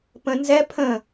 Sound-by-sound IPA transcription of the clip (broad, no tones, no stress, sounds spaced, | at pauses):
p ə̃ n z ɛ pʰ ə̃